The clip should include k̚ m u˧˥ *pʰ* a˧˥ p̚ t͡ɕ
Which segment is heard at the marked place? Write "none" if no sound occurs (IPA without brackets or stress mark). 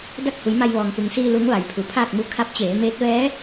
kʰ